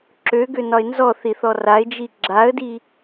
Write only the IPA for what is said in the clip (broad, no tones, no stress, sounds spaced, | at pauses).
ǁ ø ɡ ø n ɒ ɪ̯ n z ɔ θ i θ ɔ r a ɪ̯ d͡ʒ i ɡ͡ǁ a ə̯ d i